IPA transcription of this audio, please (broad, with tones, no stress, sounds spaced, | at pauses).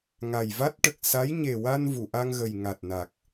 ŋ a˨˩ j v a˦˥ t̚ ʈ ə˨˩ k̚ s a˧˥ j ɲ e˨˩ w a˧ n v u˨˩˨ ʔ a˧ ŋ ɣ ə˨˩ j ŋ a˨˩ t̚ n a˨˩ k̚